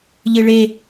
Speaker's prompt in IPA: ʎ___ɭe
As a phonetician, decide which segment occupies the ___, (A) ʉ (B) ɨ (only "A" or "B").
B